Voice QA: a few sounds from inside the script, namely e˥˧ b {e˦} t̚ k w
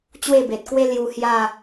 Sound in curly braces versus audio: incorrect: e˨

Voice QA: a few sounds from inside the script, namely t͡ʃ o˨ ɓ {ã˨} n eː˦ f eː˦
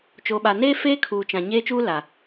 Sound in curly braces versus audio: incorrect: a˨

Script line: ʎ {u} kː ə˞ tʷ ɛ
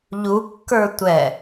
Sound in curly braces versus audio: correct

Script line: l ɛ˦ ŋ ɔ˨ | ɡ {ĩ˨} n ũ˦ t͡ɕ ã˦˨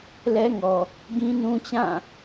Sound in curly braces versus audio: incorrect: ĩ˦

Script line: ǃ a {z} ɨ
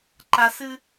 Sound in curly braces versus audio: incorrect: s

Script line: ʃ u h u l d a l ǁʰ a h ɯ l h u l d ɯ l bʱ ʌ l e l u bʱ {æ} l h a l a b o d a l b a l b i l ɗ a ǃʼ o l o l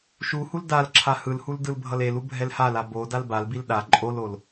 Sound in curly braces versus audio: incorrect: ɛ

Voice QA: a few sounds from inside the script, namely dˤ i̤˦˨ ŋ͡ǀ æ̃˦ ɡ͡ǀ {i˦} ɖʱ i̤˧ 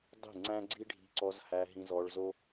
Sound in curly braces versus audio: correct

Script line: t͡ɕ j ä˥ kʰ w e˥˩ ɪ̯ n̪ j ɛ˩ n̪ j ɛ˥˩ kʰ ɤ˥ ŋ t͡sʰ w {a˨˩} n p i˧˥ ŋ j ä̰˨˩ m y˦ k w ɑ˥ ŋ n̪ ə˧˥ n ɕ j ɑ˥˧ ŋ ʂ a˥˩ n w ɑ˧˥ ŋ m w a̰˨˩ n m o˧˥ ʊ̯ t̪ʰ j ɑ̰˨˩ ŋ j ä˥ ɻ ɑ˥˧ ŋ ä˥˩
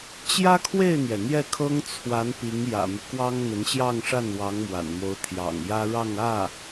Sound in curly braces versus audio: incorrect: a˧˥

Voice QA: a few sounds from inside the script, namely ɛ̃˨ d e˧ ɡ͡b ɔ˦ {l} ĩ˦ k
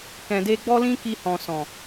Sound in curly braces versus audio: correct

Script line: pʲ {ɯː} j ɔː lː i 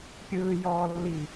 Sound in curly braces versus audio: correct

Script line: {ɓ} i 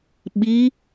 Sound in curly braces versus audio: correct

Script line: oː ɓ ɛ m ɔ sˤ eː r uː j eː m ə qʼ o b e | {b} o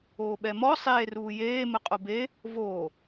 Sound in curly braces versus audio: incorrect: v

